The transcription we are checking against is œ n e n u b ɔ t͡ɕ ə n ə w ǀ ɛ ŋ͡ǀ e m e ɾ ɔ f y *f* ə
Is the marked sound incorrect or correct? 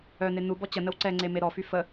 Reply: correct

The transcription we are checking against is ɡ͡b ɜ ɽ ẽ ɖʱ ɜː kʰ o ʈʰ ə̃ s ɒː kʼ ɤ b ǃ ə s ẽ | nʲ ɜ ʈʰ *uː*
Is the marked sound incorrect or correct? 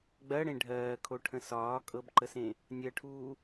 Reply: correct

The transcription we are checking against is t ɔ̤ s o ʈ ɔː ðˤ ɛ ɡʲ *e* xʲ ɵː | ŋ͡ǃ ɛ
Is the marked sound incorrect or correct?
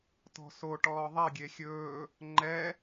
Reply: correct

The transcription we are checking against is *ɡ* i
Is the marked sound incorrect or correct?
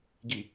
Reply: correct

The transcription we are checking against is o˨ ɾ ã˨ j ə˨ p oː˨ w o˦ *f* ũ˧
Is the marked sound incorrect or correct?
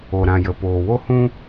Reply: incorrect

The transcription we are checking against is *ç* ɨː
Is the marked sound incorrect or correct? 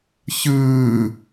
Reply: correct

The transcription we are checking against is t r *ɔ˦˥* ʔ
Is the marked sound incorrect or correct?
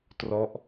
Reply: correct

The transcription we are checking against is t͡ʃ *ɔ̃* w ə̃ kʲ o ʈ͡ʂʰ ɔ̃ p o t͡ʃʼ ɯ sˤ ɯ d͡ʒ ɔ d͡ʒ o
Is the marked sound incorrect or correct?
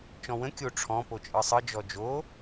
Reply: correct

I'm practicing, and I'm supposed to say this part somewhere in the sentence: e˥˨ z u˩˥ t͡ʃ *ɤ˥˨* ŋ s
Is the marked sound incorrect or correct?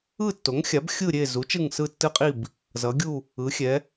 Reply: incorrect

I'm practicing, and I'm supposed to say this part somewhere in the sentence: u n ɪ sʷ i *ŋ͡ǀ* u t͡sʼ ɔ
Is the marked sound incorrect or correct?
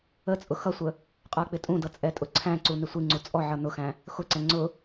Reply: correct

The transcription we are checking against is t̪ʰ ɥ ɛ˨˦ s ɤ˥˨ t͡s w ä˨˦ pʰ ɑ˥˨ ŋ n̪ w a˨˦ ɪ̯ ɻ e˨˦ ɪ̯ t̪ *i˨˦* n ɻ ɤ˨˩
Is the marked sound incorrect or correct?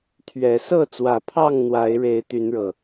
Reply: incorrect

